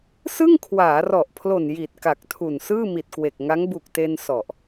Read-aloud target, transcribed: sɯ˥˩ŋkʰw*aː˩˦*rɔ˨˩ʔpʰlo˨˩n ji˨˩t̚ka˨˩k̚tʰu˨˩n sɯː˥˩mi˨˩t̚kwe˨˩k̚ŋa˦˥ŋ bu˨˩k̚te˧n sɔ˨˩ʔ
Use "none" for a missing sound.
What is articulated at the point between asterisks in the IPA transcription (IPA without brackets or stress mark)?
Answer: aː˩˦